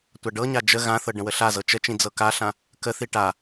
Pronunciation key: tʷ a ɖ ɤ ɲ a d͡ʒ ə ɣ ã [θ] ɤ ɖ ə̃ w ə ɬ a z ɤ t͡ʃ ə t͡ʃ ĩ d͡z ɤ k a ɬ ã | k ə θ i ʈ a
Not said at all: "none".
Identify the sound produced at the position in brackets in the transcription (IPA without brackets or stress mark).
θ